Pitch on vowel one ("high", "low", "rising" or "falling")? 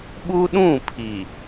high